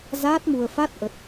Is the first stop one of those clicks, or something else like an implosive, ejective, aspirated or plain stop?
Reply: plain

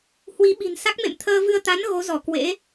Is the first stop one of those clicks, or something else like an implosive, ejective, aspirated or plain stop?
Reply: implosive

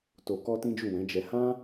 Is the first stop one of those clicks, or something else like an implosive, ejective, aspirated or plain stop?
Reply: plain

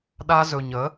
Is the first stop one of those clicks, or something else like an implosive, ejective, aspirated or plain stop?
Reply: implosive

